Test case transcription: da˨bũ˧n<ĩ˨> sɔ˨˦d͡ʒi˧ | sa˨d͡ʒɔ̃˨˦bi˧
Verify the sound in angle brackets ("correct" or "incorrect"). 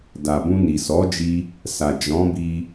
incorrect